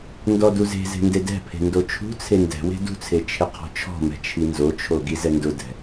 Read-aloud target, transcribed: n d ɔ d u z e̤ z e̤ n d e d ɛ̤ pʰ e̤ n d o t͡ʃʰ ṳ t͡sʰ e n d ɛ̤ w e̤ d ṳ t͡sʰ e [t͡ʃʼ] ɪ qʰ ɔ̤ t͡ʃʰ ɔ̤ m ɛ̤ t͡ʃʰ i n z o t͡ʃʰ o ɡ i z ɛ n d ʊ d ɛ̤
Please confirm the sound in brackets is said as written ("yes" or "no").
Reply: no